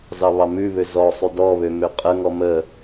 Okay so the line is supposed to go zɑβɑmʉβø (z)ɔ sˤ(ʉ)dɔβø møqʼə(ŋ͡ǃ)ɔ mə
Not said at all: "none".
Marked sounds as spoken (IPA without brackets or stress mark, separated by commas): z, ʉ, ŋ